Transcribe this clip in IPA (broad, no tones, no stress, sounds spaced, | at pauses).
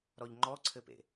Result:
ɾ ɔ ʎ ŋ͡ǃ ɔ ǀʰ ɘ p ḛ